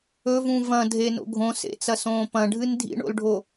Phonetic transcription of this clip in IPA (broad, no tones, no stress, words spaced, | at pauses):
ɵvũ vɐ̃dʱe no̰ɡʱõsḛt͡sɐ sõːpɐ̃ɖʱɨn dʱḭɳo̰lɖʱo